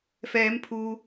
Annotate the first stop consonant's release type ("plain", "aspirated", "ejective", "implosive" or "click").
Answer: aspirated